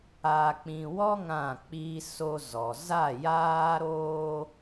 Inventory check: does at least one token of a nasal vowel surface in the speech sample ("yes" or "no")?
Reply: yes